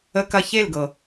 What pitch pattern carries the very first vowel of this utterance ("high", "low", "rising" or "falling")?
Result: high